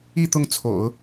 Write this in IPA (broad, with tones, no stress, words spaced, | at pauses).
i˥˧ t̪ʊ˥˩ŋt͡sʰo̰˨˩˦ʊ̯